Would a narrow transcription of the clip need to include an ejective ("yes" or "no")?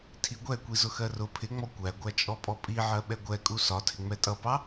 yes